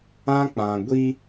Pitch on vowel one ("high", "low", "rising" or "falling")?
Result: high